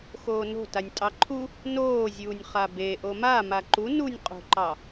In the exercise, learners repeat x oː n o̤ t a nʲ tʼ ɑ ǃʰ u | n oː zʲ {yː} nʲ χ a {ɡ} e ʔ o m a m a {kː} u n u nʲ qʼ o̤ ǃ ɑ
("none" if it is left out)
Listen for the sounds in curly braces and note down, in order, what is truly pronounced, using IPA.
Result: uː, b, ǃ

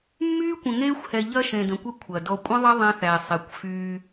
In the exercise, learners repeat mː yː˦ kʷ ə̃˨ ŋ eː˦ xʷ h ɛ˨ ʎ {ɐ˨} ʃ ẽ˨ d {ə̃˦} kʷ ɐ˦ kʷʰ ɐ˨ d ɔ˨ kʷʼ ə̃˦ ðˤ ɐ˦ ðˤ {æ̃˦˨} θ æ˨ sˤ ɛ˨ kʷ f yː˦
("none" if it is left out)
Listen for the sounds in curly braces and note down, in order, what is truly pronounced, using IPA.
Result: ɐ˦, ə̃˨, æ̃˦

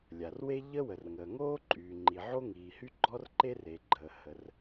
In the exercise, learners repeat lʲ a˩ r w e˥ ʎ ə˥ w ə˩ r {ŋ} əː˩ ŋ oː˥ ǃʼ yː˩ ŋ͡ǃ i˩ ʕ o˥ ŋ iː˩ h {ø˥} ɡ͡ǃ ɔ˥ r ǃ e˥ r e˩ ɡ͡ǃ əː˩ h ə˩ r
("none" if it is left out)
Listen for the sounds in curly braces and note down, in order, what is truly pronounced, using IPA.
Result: ŋ, y˥

